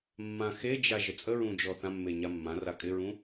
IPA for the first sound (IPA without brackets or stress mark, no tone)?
mː